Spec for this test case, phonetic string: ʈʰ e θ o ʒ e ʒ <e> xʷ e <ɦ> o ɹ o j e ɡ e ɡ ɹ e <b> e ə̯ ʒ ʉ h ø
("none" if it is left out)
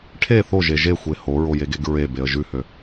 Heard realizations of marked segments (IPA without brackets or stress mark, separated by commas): e, h, b